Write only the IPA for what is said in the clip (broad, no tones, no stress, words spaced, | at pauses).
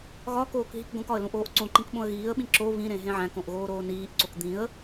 ɣɒkoːk ɦikɡõkɒə̯ lũʔoːʔǀõǃĩk ɓõə̯ɣiːə̯ɓĩ ǁo βĩɾẽ ɦẽʕæ̃kõʔ ɣoːɾoːniːʔǀok d̪ĩə̯